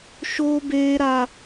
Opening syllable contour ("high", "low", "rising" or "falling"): high